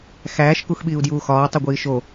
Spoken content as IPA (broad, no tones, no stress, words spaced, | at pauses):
xæːʃ kuxɓiːu̯djuːxɒː tˤuɡʷiːʃo